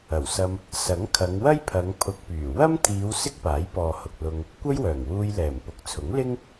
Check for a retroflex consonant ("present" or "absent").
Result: absent